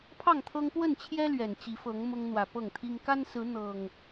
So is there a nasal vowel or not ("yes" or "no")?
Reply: no